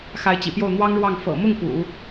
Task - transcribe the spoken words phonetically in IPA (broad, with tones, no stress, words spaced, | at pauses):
xa˧˥ɪ̯t͡ɕḭ˨˩pjo˥˩ʊ̯ n̪wɑ˥ŋɻwɑ˥˩ŋ fɤ̰˨˩mʊ˥˩ŋ pṵ˨˩˦